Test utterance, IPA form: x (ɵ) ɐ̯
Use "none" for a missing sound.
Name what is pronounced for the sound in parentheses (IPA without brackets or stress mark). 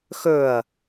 ɵ